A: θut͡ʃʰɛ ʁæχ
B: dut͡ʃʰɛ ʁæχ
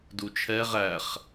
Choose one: B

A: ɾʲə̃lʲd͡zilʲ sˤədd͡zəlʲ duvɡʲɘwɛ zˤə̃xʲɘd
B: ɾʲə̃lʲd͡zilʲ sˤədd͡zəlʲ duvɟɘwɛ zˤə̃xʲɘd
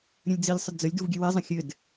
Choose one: A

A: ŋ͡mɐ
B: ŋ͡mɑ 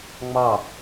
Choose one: B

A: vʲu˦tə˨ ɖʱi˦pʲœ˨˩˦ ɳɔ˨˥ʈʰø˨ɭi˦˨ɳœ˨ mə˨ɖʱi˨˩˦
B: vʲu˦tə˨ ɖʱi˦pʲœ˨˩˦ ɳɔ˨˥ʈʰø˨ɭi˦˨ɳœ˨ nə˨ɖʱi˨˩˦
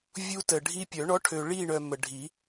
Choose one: A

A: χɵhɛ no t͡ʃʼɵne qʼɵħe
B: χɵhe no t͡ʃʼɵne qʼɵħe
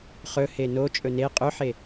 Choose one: B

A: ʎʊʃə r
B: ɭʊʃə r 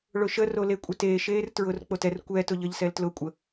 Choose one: B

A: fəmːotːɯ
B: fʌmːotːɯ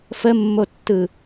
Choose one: A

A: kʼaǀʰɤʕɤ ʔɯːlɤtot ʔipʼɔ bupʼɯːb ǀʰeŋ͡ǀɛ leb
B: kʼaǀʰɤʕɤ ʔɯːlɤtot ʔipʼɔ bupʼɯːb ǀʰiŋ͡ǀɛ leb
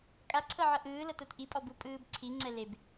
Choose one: B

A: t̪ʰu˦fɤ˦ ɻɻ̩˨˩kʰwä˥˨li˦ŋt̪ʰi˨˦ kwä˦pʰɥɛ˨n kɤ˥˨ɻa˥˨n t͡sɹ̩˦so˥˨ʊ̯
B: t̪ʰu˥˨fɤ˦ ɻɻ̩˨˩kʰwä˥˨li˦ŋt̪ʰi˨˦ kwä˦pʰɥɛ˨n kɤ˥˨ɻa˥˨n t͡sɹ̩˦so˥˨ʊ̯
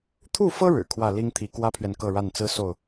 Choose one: B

